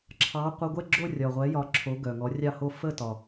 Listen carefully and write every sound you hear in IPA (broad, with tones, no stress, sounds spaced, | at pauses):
ǁʰ ɑ˨˥ qʷ ə˧˥˧ ɡʷ ɛ˥˧ ɡ͡ǁ o˥˧ rʲ ɒ˨˩ ʁʷ ɛ˨˥ j ɒ˨˥ ǁʰ o˨˥ ɡ œ˨˩ ŋ ɔ˨˥ rʲ ɑ˥˧ h o˥˧ f ə˥˧ t ɒ˨˩